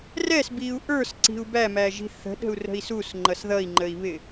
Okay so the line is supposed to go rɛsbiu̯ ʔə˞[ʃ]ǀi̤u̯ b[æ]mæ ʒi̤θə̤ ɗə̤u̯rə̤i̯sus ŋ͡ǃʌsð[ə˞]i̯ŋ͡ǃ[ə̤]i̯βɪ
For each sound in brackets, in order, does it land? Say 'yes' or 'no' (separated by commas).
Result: no, yes, no, no